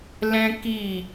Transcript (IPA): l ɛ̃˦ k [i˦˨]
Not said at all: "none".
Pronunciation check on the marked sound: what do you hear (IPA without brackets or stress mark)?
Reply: i˦˨